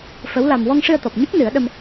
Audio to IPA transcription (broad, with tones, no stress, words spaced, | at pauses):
fə˧˥wla˧m wɔ˧ŋʂɨ˧ə̯t̪ɔ˨˩p̚ ɲə˦˥k̚ nɨ˨˩˦ə̯ɗə˧m